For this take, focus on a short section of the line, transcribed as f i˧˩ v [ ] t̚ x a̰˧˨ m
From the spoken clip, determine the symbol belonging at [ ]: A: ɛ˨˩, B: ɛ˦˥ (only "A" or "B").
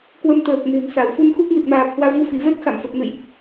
B